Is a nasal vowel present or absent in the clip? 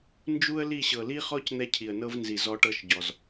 absent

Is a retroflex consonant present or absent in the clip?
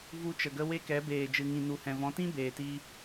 absent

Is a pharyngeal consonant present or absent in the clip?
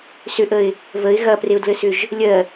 absent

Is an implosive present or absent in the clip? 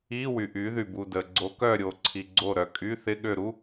present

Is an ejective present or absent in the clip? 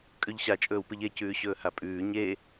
present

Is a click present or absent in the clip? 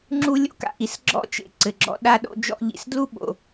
present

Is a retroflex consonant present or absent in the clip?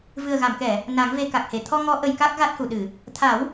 absent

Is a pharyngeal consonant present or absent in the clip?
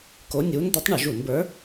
absent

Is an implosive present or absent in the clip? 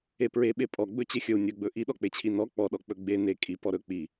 present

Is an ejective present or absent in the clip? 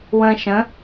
absent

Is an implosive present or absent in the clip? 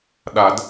present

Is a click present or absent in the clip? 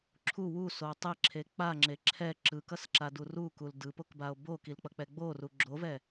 present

